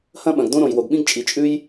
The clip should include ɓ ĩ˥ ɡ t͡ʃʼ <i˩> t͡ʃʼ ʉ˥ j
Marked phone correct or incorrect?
correct